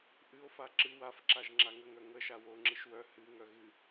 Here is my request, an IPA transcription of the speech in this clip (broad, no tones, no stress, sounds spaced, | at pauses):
ʔ ɨ o̯ f a ǁ ɨ w a f ǁ a ʒ ŋ͡ǁ a ŋ ə ŋ œ ŋ ə ʃ a w o ŋ͡ǁ ɨ ʃ w œ h ɨ ŋ œ ɣ ɨ